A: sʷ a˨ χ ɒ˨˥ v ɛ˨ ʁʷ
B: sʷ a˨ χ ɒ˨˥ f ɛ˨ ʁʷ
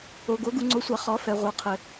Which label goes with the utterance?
B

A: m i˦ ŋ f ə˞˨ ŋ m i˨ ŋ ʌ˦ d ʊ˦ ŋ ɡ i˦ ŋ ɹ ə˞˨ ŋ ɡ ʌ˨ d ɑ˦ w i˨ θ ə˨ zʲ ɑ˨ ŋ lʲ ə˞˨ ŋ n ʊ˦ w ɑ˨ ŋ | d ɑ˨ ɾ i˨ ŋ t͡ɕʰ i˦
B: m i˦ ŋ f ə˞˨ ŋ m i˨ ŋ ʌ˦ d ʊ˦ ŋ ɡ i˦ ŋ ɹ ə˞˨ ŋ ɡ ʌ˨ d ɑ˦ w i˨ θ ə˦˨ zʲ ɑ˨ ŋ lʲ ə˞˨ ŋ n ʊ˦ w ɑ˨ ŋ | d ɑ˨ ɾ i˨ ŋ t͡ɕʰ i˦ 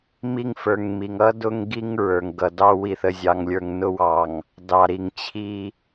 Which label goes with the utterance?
A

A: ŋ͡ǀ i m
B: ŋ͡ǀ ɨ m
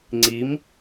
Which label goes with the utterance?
A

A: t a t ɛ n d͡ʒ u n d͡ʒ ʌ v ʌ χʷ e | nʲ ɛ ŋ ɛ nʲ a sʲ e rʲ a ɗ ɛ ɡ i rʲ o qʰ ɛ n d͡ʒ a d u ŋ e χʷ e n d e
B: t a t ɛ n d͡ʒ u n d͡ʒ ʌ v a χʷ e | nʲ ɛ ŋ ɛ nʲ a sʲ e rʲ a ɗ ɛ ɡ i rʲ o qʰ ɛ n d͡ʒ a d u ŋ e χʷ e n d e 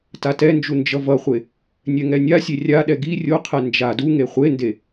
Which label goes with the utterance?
A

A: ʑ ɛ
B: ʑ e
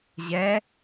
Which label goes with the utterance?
A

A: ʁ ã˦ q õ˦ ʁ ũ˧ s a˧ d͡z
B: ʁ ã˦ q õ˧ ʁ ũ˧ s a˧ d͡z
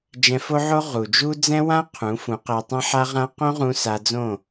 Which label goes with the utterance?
A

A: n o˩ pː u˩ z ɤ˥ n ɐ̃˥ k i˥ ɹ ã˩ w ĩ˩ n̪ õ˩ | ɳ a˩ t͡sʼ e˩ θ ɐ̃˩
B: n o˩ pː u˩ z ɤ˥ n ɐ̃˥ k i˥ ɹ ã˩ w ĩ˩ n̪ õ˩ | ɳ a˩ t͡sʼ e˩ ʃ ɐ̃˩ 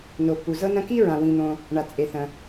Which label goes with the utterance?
A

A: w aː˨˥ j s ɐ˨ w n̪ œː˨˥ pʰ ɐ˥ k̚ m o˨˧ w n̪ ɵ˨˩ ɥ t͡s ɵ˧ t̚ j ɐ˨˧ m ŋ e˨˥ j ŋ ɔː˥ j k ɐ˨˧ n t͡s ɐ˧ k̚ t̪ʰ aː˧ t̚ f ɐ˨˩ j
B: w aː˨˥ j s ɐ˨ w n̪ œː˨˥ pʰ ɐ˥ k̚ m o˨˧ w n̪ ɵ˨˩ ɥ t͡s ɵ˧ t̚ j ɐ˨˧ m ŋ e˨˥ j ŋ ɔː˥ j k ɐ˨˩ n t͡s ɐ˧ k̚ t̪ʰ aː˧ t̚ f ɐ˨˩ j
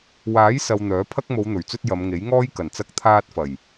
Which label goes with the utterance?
B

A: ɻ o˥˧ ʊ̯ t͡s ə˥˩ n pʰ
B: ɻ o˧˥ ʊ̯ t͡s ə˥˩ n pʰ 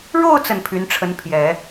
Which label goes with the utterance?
A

